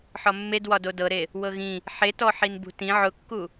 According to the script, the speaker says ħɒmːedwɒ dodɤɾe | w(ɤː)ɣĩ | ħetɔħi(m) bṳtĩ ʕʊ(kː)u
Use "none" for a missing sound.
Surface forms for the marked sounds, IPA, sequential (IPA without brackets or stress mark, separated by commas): ɤ, n, kː